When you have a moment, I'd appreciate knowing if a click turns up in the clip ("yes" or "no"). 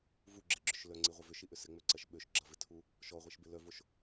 yes